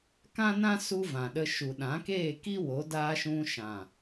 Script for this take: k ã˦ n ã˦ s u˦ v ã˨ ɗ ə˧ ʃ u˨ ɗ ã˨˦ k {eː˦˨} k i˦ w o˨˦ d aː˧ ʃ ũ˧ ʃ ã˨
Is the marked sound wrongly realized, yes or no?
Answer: no